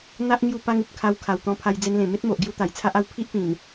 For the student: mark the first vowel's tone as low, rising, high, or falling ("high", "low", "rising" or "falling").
high